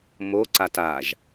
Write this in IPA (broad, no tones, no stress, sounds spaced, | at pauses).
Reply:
m o ǀ a t a ʒ